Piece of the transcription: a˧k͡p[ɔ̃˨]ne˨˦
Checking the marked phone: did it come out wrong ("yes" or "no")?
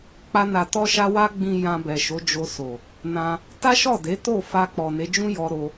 yes